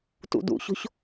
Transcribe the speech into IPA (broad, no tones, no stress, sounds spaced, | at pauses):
t ṵ d ṵ ç o̤ ç